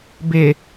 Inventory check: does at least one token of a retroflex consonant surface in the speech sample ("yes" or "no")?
no